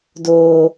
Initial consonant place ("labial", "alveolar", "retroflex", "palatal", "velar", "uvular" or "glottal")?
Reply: alveolar